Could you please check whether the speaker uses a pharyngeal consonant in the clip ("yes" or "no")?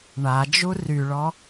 no